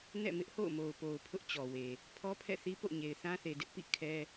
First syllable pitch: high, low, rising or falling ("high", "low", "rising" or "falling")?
falling